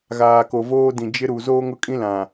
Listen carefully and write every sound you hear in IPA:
ɣ aː˨ k o˨ v oː˦ d ĩ˨ d͡ʒ ɪ˦ ɾ u˨ z oː˦ ŋ ʊ˦ kʼ ĩ˦ l ã˨

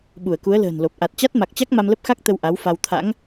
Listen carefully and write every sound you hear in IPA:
ɓ u˧˩ ə̯ k u˨˦ ə̯ l ə̤ː˨˩ n l o˨˩ p̚ ʔ a˨˩ t̚ t͡ɕ a˦˥ t̚ m a˨˩ k̚ t͡ɕ a˦˥ k̚ m a˧ m l ə˦˥ p̚ x a˦˥ k̚ t̪ ə˧ w ʔ a˨˦ w f a˧ w t̪ʰ a̰˧˥ ŋ

